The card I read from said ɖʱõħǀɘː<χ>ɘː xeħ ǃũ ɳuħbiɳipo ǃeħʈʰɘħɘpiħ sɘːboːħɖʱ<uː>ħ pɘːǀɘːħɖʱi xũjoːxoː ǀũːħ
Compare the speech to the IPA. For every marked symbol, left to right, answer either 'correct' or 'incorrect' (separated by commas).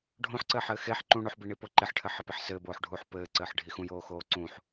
incorrect, correct